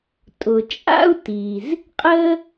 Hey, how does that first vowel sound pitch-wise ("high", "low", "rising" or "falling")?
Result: low